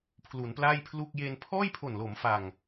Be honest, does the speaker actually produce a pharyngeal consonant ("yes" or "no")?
no